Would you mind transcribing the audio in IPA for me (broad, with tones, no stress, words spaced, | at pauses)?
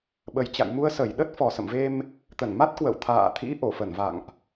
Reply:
ɓə˨˩jt͡ɕa̰˧˨jmu˧ə̯ sə˧˩jɗə˦˥t̚ fɔ˨˩sə̰˧˨mve˧m | t̪ə˧˩nma˦˥t̚ kwə̰˧˨wt̪ʰa̰ː˧˨t̪ʰḭ˧˥ ʔo˧˩fə˧˩nva̰˧˨ŋʔ